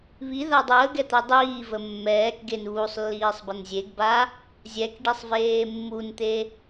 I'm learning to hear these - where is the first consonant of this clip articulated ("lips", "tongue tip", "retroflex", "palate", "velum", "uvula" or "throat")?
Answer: lips